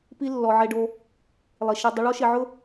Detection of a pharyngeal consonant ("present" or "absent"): present